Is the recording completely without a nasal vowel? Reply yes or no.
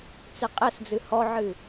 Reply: yes